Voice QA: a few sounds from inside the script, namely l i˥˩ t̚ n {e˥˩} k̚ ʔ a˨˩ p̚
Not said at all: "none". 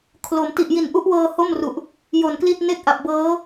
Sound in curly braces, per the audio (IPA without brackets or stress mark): e˥˩